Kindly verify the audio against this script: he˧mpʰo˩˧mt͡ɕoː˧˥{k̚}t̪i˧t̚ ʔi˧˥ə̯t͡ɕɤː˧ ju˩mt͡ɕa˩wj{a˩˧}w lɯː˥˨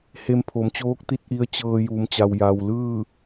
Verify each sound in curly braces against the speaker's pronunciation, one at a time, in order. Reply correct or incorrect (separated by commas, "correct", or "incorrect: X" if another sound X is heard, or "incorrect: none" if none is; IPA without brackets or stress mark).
correct, incorrect: a˩